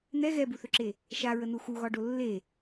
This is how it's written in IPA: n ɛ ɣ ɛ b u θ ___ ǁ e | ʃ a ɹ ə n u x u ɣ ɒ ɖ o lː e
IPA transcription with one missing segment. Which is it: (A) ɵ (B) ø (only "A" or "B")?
A